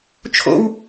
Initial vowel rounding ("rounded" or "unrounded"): rounded